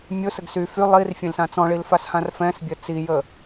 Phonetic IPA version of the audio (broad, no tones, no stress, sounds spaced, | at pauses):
mʲ ʊ s ə ɡ s y f y lˠ i r fʲ ẽ l s ã t͡s ɔ̃ ɭ i l f a s h ã r f ɛ̃ s bʲ ɜ t͡s i j ə